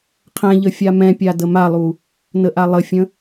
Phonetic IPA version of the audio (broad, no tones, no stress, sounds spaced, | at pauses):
qʰ ɛ̃ ʎ ə fʲ a m ɛ̃ pʲ a d ə m a lˠ u | n ə ʔ a lˠ ə fʲ ə̃